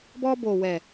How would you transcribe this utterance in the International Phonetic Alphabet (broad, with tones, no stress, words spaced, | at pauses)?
bɔ˧ bo˨wɛ˨